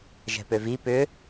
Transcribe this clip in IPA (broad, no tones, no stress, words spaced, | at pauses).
ʒɛ̤pøvi pʏ